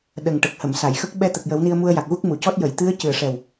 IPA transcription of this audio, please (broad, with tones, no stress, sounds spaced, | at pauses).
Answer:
ɗ ə˨˩ ŋ ʈ ə˨˩ k̚ h ə˨˩˨ m s a˨˩˨ j x ə˦˥ k̚ ɓ ɛ˧ t̪ ə˨˩ k̚ j ə˨˩˦ w n i˧ ə̯ m u˧ ə̯ j a˨˩ k̚ ɣ u˦˥ k̚ m u˨˩˨ c ɔ˦˥ t̚ j ə˨˩˨ j t̪ ɨ˧˥ ə̯ c ɨ˨˩ ə̯ ʂ ɛ˨˩ w